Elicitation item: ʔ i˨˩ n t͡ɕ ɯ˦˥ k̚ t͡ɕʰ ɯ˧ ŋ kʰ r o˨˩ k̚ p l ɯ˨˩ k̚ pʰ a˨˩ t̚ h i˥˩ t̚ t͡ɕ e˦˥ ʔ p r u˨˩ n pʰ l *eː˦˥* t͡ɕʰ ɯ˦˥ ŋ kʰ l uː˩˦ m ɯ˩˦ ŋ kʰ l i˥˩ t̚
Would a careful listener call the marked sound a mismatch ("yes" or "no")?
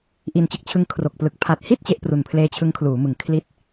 no